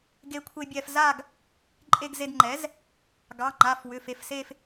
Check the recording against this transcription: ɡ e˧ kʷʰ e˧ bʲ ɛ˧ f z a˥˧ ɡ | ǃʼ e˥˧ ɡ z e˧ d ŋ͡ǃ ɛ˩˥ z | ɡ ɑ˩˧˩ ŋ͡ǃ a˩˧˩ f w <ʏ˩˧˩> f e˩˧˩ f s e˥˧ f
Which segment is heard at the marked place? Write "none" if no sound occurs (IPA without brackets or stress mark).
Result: ʏ˩˧˩